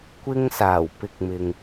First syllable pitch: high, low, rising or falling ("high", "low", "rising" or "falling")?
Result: high